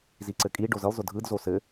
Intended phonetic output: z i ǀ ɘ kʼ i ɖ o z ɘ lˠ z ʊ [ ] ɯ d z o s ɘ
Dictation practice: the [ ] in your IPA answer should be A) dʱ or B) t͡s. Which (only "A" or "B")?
A